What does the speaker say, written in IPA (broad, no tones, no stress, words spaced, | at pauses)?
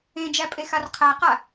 ẽd͡ʒæ pʼexarqʰæqa